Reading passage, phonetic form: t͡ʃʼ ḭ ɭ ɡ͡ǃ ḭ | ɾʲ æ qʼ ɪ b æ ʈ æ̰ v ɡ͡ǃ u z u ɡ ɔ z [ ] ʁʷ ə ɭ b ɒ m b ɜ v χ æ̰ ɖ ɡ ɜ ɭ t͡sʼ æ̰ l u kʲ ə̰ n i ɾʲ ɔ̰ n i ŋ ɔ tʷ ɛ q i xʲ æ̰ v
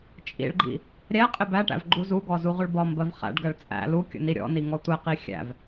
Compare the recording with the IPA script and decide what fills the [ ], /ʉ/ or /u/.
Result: u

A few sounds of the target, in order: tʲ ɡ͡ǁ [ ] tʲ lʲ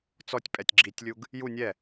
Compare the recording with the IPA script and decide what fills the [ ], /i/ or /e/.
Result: i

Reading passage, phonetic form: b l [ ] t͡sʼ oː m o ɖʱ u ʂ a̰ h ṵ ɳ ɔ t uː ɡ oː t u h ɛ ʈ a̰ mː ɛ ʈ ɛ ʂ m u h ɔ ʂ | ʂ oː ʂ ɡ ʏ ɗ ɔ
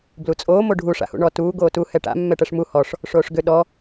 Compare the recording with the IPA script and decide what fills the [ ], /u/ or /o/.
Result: u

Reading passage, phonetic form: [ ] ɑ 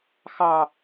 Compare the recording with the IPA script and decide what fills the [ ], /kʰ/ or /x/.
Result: x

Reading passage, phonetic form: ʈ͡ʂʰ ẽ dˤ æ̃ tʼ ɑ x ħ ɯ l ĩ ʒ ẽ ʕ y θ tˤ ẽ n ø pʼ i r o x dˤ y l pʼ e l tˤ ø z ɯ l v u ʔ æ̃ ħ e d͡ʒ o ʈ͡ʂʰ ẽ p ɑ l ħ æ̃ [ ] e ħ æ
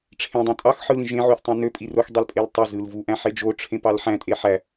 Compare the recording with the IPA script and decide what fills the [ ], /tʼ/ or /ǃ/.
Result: tʼ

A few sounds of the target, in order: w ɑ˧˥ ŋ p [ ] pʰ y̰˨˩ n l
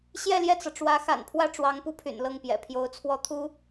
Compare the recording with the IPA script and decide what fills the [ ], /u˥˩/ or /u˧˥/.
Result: u˥˩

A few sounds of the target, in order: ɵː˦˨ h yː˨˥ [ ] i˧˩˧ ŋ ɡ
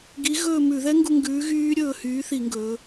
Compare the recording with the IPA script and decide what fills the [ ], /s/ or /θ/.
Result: θ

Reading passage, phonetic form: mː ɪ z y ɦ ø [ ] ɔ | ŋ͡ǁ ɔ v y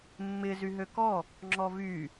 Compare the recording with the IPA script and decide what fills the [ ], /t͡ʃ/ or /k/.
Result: k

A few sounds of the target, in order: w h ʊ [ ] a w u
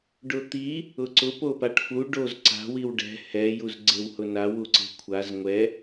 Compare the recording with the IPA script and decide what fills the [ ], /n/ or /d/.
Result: n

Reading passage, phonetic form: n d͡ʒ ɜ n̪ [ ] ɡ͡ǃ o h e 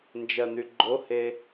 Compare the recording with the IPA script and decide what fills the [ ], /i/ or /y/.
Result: y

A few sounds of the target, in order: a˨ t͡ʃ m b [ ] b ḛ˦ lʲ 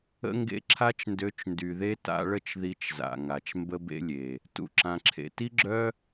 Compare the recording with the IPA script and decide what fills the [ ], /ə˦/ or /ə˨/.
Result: ə˦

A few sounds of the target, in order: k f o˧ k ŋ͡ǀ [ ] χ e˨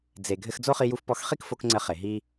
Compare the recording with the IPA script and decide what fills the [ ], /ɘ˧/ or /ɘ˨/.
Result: ɘ˧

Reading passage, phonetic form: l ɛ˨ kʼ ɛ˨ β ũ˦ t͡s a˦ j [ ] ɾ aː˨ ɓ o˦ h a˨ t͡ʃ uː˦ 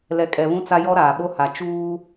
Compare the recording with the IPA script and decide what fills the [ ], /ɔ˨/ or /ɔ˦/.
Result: ɔ˦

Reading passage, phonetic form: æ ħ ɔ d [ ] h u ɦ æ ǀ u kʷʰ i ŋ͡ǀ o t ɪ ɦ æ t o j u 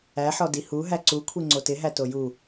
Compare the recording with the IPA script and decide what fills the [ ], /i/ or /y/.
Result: i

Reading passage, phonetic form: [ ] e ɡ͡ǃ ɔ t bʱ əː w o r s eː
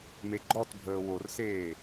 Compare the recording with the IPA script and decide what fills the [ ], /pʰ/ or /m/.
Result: m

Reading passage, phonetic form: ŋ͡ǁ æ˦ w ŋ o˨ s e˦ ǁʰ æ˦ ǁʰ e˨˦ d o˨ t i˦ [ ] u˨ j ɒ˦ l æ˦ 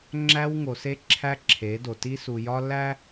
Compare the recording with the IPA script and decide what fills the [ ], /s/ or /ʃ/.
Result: s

